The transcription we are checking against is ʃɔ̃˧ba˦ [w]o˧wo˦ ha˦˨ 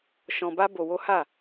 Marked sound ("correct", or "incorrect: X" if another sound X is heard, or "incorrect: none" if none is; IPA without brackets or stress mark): incorrect: b